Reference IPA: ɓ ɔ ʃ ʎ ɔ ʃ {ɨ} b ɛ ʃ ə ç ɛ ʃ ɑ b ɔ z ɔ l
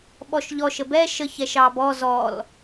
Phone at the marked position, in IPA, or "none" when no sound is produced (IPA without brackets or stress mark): ə